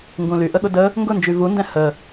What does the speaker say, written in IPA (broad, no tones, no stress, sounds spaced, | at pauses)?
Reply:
ŋ ɡ ũ l y ʔ ə ɠ ʊ d ə | ŋ ɡ ʊ n d͡ʒ y v u n d ɛ̃ h ə